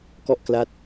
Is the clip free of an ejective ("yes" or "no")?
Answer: yes